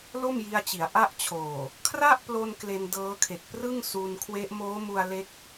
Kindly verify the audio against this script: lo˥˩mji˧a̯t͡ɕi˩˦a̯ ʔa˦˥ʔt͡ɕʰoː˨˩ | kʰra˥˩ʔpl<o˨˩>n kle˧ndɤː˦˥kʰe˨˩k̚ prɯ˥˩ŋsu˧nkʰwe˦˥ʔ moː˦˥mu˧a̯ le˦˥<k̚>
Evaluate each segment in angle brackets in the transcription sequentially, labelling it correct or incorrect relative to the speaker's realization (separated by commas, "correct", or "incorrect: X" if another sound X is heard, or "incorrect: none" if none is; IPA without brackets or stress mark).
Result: incorrect: o˧, correct